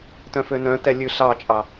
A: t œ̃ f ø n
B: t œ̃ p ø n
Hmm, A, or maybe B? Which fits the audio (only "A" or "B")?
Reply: A